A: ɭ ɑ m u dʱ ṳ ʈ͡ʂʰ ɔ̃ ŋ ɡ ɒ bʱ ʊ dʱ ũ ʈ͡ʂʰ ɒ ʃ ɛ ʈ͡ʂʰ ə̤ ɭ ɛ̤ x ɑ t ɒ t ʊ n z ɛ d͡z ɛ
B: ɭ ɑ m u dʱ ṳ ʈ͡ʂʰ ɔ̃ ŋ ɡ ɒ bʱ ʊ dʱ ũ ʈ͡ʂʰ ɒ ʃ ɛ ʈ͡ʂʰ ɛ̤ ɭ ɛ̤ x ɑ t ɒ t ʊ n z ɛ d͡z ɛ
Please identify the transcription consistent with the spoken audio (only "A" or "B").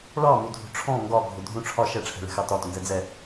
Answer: B